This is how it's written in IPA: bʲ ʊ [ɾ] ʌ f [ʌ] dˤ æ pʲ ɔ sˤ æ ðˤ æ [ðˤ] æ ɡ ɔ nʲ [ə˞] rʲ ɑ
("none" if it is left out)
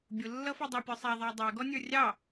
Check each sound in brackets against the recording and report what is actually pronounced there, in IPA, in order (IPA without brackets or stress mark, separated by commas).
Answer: lː, ɔ, dˤ, ə˞